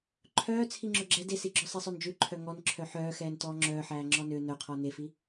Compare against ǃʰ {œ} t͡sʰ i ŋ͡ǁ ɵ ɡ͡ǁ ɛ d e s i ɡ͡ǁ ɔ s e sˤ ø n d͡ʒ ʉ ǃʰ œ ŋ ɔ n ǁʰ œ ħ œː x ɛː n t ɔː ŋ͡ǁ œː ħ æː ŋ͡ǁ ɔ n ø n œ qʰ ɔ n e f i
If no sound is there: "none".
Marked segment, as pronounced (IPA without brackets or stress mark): œː